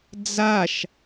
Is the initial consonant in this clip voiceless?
no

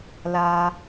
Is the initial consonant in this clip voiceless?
no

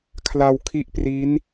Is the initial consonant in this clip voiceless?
yes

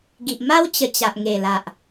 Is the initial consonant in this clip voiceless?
no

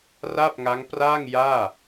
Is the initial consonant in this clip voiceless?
no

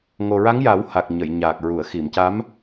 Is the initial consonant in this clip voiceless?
no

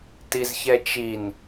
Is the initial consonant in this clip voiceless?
yes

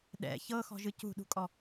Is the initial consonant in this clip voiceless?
no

